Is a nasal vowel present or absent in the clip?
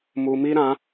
present